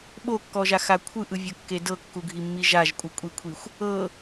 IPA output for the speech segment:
ɓ o kː ɔ ʒ a x a kʷʰ ɯ ʔ ɯ vʲ ɤ kː e d ɤ kː u ɡʱ i mː i ʒ a ʒ kʷʼ ɯ kʷʼ i kʷʰ i xʷ | ɤ

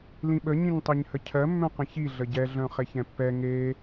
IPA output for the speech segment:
l ĩ ɓ ə ɲ ĩ ɲ tˤ e ɲ h ə cʰ ɜ mː œ̃ q ə̃ ç i ɮ ə ɟ ɛ ɮ œ̃ χ e ç ɛ̃ pː ɛ ŋ e

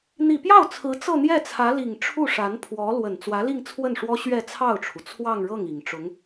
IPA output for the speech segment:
n̪ i˨˩ p j ɑ˥˩ ʊ̯ t͡sʰ ɹ̩˧˥ t͡s ɤ˥˧ n̪ j ɛ˥˩ t͡sʰ ä˧˥ l i˨˩ ŋ ʈ͡ʂʰ u˥˩ ʂ a˧˥ n pʰ w ɔ˧˥ l w ə˨˩ n t͡s w ä˧˥ l i˥˧ ŋ t͡sʰ w ə˥˩ n ʂ w ɔ˥ ɕ ɥ ɛ˥˧ t͡sʰ ɑ˥˩ ʊ̯ ʈ͡ʂʰ u˩ t͡sʰ w ɑ˥˧ ŋ ɻ ɤ˥˩ ŋ i˨˩ ŋ ʈ͡ʂ ʊ˧˥ ŋ

